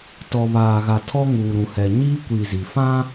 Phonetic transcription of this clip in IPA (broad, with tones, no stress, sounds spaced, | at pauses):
t ɔ˨ β aː˨ ɣ a˨ tʰ ɔ˦ ŋ uː˨ ɾ ũ˨ h ɛ˨ ɲ iː˦ kʷ i˨ z i˨ f ã˦